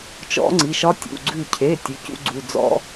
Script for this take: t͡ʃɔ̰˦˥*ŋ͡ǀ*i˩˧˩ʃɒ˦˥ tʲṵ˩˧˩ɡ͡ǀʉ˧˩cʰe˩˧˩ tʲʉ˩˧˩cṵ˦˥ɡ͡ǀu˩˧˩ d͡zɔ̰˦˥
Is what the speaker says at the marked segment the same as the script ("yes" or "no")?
yes